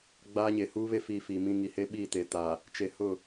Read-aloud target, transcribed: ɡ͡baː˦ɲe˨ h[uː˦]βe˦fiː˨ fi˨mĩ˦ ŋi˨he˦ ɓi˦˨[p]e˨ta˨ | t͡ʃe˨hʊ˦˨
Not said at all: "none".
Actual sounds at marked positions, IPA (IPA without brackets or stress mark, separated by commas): uː˦, t